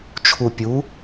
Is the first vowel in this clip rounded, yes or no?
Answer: yes